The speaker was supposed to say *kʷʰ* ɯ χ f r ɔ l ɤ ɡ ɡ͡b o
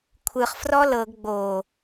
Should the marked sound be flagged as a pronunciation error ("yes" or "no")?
no